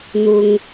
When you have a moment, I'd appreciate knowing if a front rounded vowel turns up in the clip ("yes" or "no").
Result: no